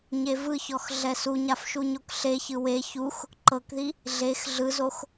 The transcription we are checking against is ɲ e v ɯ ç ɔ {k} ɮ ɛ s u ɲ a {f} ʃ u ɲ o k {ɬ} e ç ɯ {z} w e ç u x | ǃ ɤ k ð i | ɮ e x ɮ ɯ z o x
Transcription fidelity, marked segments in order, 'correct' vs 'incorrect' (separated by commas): incorrect, correct, correct, incorrect